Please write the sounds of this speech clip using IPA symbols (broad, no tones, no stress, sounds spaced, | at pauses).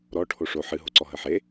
ɾ ɔ ʈʰ o ʂ o ħ ɨ ɦ o ǀ ɔ ɦ ə ħ e